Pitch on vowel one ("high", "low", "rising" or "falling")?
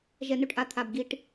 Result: low